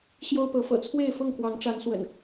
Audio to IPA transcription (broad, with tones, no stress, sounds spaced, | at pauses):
ɕ j o˦ ʊ̯ p ɤ˨˦ f ɤ̰˨˩ t͡sʰ w e˥˨ ɪ̯ f ʊ˥˨ ŋ k w ɑ˨˦ ŋ ʈ͡ʂ a˨˦ n s w ə̰˨˩ n